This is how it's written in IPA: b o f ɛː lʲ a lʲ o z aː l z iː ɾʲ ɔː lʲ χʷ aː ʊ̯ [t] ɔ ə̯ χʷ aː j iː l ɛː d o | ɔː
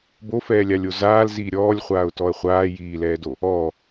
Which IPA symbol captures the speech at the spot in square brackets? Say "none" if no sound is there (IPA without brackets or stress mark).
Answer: t